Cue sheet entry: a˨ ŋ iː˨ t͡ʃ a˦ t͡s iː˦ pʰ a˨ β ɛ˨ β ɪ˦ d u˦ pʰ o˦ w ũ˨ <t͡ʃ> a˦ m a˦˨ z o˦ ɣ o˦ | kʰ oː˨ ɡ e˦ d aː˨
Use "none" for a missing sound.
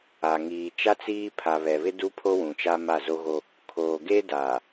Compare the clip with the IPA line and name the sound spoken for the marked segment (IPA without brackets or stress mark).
t͡ʃ